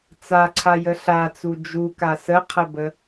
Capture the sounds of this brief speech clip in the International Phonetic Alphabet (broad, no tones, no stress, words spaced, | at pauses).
t͡saǀʰajə ɬat͡su d͡ʒuka səqʰəbə